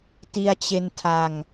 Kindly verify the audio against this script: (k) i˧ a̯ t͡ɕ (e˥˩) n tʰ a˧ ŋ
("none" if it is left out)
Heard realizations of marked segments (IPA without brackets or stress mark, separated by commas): t, e˧